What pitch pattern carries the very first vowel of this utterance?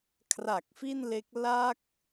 low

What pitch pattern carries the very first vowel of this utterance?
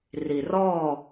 low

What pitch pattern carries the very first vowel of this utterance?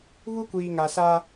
high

